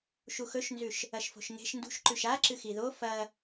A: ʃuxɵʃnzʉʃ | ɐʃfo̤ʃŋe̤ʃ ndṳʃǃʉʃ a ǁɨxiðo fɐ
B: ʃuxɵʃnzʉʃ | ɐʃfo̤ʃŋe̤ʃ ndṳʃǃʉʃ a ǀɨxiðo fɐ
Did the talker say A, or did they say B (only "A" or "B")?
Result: A